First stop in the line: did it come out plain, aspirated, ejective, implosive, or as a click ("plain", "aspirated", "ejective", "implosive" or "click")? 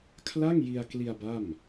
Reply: aspirated